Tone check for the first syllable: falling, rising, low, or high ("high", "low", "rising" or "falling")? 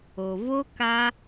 low